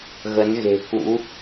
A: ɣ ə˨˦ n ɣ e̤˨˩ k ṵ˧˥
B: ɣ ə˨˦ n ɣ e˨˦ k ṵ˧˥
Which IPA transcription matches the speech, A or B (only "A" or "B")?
A